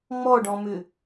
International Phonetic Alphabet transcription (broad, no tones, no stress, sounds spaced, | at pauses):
ŋ͡m ɔ ɖ ɔ̃ m ʏ